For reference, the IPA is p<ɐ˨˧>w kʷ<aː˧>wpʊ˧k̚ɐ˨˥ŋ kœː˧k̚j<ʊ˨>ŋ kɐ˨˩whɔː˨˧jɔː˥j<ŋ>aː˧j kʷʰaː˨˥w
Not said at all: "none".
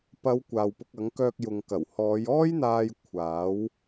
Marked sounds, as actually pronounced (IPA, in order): ɐ˨˧, aː˨, ʊ˨, n̪

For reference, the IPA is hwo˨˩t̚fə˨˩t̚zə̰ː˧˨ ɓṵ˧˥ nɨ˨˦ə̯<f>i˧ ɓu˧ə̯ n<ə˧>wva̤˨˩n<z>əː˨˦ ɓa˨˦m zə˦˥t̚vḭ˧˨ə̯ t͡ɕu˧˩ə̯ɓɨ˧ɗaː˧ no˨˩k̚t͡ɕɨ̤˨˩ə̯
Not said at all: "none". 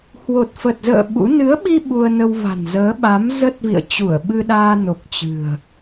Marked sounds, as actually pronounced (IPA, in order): ɓ, ə˧, z

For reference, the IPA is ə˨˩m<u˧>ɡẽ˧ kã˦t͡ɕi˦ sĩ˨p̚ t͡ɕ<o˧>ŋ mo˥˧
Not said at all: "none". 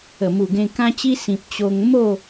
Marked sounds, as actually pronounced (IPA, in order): u˨˩, o˧

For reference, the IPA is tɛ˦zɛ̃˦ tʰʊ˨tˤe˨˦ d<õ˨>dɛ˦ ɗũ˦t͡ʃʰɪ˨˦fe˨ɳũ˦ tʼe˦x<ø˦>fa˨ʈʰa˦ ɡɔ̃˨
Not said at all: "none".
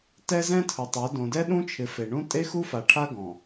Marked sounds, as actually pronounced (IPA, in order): õ˨, u˦

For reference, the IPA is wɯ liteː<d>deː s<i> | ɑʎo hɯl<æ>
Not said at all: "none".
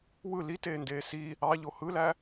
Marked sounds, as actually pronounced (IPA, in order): n, i, æ

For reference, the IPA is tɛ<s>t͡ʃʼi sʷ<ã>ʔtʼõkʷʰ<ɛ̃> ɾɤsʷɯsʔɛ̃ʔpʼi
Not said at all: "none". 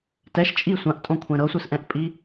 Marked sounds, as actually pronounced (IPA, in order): ʃ, ã, ɛ̃

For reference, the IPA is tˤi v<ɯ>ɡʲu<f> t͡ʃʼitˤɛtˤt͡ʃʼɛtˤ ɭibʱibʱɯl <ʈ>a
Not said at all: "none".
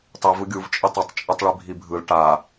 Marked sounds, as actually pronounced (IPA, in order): ɯ, v, ʈ

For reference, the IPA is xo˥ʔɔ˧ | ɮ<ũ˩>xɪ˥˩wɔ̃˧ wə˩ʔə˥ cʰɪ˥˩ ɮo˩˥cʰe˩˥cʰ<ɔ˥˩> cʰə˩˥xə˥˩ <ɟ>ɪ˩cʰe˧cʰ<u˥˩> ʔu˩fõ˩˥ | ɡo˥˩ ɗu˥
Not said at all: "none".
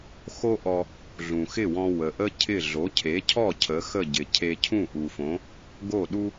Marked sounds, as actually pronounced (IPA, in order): ũ˩, ɔ˥˩, ɟ, ũ˥˩

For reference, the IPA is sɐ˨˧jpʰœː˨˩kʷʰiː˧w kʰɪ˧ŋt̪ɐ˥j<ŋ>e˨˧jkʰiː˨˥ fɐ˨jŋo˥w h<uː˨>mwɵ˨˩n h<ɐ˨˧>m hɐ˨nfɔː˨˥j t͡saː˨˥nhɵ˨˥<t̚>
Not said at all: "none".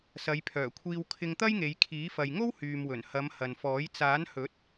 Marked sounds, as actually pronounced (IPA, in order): ŋ, yː˨, ɐ˨˧, t̚

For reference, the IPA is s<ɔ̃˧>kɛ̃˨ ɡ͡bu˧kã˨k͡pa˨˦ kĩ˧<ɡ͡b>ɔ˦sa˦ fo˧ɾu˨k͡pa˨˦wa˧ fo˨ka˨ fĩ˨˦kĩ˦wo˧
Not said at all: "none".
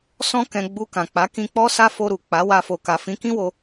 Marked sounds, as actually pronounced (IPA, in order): ɔ̃˧, k͡p

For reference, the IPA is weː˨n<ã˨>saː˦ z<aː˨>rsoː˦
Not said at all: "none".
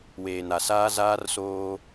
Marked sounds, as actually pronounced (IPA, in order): a˨, aː˦

